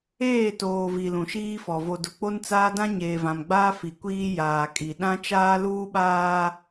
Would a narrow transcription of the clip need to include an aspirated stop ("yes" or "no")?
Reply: no